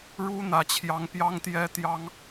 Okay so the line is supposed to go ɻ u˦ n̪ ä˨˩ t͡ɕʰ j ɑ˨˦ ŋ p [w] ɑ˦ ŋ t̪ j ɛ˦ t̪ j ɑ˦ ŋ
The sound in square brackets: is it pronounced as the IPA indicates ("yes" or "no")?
no